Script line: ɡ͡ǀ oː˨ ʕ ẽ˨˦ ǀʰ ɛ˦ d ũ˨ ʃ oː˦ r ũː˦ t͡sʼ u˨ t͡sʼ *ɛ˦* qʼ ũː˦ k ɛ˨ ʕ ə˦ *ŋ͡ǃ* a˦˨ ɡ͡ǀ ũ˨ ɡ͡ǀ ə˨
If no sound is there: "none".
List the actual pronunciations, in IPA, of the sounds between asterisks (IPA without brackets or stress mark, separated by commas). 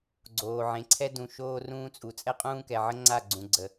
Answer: ɛ˦, ŋ͡ǀ